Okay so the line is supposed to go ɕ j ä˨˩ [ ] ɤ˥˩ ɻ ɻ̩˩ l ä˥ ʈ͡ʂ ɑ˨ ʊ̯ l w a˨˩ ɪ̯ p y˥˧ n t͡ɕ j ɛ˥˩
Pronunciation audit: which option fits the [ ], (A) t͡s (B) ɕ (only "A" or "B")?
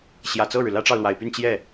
A